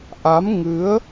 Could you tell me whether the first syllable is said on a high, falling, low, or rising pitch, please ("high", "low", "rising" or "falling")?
rising